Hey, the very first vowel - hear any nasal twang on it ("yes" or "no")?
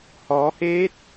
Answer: no